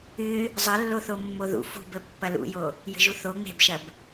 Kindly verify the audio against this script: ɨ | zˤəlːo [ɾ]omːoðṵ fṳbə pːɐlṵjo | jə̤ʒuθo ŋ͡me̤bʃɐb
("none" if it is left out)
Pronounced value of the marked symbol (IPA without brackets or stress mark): θ